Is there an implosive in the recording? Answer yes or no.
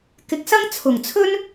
no